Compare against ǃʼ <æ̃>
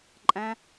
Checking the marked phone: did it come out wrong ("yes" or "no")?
no